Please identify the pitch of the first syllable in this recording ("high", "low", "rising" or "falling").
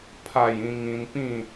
falling